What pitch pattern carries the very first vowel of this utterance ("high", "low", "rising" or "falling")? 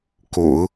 low